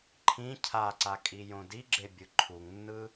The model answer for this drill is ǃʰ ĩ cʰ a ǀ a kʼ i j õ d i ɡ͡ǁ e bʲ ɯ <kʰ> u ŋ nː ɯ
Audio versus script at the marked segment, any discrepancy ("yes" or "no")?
yes